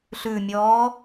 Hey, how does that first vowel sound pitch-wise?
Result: low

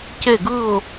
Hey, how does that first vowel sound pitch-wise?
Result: falling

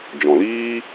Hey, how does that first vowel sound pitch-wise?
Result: low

